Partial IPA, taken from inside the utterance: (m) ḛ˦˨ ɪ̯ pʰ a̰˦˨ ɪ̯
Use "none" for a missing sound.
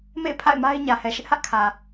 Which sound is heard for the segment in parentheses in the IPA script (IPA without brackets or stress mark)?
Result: m